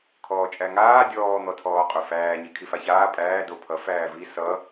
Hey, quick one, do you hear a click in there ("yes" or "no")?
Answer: no